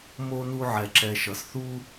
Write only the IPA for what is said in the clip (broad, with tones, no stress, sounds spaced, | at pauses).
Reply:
m o˥ n u˦ ʕ ɛ˨ ǁ ɛ˨ ʃ ʌ˩ s θ u˥